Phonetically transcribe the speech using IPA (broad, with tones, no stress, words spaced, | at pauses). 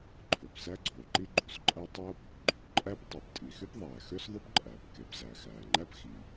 ǃʰø˩psæ˥ɡ͡ǀoː˩ǃi˥ ɡ͡ǃu˩sǃʼæ˥ tˤoː˥p | ɡ͡ǃy˩pǃʼæ˥p tˤu˩ptʼi˩xy˥pðˤæː˩ xø˥sðˤy˥pǃʼæː˩p ke˩pzæ˩ xæː˩ŋ͡ǃæ˥p xi˩